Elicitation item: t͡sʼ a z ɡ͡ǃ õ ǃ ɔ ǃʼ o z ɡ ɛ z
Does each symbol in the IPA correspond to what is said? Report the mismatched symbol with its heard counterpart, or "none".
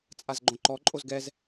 none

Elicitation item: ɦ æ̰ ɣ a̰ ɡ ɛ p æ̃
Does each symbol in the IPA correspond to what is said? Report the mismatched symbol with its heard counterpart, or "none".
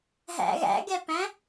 a̰ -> æ̰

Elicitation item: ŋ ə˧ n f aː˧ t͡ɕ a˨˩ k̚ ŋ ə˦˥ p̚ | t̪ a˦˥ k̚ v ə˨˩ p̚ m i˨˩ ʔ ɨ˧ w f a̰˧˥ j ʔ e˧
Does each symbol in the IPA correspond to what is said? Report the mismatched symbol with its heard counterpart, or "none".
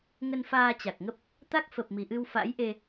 v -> f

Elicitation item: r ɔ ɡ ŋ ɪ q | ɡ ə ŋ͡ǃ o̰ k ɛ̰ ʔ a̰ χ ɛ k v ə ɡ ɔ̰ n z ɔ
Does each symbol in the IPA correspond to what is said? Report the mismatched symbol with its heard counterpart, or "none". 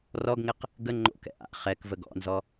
none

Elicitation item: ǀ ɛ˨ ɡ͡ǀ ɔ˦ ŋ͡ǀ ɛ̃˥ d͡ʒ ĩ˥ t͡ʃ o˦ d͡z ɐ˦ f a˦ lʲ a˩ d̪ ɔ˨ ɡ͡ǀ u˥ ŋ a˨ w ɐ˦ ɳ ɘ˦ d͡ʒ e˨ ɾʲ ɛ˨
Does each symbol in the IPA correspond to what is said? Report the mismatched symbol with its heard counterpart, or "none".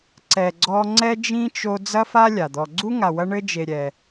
ɛ̃˥ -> ɛ˥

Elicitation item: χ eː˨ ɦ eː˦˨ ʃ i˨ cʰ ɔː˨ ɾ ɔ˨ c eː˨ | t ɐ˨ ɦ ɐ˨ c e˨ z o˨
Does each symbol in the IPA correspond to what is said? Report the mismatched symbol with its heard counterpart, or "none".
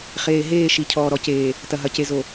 none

